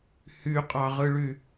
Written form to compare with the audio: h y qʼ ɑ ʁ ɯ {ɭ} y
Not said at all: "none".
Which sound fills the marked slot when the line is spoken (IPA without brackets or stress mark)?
ɭ